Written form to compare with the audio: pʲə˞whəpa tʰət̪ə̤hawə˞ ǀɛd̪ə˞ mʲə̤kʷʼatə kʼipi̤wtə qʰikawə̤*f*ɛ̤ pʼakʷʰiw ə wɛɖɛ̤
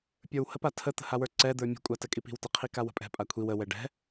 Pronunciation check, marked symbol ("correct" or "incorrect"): incorrect